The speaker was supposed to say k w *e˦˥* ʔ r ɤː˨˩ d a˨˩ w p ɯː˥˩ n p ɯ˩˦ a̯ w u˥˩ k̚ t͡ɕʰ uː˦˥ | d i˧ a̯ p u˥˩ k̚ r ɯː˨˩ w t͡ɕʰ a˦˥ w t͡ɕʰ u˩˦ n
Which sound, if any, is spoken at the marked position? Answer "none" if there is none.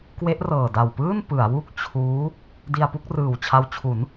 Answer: e˦˥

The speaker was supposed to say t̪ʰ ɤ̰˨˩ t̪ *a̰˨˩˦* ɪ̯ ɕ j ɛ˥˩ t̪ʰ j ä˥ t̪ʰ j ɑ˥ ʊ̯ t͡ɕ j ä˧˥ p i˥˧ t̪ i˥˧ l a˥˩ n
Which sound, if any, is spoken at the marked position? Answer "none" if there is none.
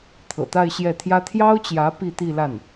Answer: a˥˧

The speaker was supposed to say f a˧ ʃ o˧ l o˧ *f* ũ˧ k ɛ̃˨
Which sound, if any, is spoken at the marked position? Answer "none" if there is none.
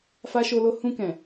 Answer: h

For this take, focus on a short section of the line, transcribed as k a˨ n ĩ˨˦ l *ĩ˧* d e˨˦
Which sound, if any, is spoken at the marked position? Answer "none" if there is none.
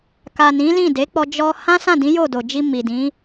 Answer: ĩ˦˨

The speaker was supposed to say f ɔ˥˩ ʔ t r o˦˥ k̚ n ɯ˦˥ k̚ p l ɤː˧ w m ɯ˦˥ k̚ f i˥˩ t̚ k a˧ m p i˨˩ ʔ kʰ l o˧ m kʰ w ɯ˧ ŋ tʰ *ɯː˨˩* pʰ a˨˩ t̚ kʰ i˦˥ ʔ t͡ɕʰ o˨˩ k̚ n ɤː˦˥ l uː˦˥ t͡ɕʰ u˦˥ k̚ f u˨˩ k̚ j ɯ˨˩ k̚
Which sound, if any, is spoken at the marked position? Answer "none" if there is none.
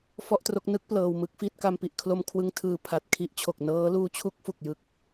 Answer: ɯː˨˩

